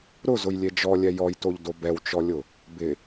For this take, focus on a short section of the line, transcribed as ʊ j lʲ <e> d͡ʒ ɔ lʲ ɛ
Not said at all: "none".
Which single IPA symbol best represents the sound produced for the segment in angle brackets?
e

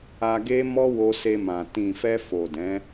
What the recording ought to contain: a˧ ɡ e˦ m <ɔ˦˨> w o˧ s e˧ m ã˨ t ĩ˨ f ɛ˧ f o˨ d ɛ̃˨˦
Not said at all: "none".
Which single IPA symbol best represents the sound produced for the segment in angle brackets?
ɔ˦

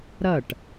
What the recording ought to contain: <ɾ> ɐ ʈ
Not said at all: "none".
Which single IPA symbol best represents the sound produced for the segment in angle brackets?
ɾ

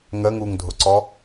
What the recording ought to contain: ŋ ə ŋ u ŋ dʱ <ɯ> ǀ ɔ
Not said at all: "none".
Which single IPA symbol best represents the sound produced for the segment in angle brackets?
ʊ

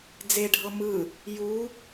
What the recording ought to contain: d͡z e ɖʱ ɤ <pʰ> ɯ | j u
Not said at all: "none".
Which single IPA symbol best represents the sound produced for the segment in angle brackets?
m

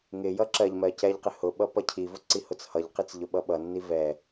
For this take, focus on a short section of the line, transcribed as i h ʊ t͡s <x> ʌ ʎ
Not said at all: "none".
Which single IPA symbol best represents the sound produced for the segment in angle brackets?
h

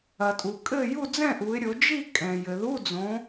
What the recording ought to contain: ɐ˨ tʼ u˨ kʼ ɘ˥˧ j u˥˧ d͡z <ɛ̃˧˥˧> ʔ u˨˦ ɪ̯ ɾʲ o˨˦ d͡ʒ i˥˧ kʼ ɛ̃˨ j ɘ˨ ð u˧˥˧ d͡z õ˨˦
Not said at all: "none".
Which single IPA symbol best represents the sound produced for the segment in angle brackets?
ɛ̃˥˧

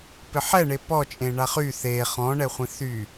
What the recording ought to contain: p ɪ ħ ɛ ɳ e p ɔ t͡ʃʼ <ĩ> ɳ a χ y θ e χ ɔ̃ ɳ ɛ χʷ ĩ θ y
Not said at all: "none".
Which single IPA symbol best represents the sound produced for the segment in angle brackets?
ẽ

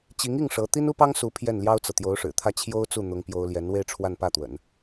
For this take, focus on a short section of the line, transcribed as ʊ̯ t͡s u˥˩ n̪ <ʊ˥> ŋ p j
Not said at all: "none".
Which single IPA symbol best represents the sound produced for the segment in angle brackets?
ʊ˥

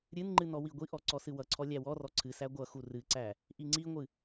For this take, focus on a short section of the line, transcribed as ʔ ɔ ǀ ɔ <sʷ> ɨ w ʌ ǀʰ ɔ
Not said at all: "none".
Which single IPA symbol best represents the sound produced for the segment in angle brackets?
s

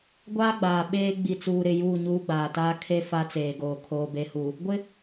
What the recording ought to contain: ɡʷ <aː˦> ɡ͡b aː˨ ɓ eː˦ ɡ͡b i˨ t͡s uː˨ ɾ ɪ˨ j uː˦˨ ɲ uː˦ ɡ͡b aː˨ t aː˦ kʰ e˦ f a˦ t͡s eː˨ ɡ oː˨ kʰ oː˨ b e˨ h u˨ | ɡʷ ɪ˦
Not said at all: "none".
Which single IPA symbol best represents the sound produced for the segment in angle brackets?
aː˦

